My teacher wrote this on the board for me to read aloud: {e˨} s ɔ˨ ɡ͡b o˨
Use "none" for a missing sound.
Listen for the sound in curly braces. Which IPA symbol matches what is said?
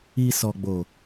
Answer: i˨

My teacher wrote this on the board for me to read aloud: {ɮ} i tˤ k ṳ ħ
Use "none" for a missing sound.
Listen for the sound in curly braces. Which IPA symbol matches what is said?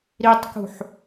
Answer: ɾ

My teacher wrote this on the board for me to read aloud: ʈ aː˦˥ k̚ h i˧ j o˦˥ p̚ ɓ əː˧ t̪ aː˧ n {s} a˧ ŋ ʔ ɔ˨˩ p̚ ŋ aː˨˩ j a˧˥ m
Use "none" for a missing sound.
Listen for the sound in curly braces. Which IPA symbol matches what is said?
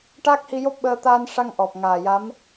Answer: ʂ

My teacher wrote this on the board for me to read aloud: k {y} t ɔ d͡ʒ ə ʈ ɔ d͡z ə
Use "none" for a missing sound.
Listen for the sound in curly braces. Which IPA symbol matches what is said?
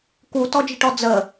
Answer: u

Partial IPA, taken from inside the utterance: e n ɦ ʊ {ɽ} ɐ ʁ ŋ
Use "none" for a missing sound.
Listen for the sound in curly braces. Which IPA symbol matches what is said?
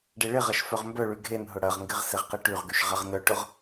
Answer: ɽ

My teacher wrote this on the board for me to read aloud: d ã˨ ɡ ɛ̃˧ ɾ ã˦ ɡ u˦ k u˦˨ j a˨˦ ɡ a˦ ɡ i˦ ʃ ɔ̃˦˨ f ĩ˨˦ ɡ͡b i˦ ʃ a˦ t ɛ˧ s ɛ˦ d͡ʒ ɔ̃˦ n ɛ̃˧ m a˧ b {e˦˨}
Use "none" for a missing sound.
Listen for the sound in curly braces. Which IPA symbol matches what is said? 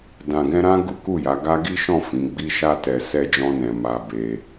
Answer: e˧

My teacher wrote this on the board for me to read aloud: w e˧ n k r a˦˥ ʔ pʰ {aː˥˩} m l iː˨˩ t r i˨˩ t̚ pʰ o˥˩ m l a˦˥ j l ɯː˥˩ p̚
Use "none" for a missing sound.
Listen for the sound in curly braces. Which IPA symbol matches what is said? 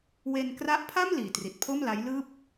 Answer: a˥˩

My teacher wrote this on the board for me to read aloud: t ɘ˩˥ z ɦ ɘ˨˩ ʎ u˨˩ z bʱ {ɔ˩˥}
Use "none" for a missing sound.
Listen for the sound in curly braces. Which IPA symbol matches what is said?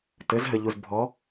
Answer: ɔ˩˥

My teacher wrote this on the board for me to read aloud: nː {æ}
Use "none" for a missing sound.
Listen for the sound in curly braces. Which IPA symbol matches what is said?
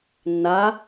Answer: a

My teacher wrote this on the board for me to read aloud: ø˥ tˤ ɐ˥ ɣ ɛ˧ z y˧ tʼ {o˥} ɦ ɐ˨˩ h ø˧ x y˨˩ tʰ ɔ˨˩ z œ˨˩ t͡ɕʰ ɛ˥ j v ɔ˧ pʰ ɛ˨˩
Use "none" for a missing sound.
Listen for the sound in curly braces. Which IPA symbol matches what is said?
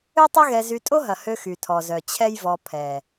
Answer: o˥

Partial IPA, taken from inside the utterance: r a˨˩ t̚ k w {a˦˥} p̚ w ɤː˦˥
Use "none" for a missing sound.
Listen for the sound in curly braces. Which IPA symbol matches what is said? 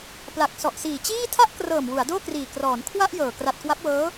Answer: a˦˥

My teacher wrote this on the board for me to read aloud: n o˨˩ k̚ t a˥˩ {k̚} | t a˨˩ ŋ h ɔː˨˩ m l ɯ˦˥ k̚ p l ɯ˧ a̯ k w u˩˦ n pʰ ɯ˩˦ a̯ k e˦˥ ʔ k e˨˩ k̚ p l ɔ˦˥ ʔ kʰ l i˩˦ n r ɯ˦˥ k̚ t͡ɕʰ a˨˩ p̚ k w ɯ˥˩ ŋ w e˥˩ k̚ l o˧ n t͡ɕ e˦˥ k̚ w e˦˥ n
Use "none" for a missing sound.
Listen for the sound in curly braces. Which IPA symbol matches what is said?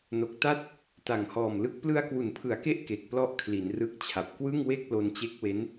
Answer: t̚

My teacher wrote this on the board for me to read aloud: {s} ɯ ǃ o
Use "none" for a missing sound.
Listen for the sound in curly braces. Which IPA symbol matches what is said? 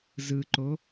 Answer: z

